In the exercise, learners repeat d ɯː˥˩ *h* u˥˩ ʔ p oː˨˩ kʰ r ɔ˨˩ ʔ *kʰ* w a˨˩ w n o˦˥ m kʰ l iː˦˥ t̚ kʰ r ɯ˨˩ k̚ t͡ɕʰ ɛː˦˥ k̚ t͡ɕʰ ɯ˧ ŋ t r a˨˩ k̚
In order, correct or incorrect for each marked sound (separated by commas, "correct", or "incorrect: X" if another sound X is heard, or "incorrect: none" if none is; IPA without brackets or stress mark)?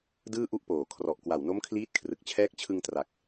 incorrect: ʔ, incorrect: k